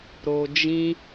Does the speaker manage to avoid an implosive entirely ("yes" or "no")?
yes